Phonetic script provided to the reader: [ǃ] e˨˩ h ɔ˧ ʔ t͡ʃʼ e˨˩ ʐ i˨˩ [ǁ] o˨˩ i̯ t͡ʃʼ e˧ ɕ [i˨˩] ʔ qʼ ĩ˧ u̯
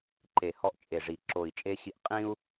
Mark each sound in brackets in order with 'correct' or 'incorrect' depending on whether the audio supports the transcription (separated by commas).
correct, correct, incorrect